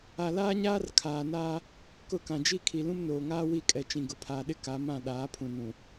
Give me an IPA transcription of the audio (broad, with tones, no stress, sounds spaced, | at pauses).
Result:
a˨ l aː˦ ɲ aː˦ r kʰ aː˨ n aː˦ | k ʊ˦˨ k ã˨ d͡ʒ i˦ kʰ i˨ l ũ˦ m n oː˨ ŋ aː˦ w i˦˨ kʼ ɛ˨ t͡ʃ ĩ˨ ɡ ʊ˨ pʰ aː˨ ɗ ɪ˦ k a˨˦ m ã˦˨ ɗ aː˨˦ pʰ ũ˨ n ũ˨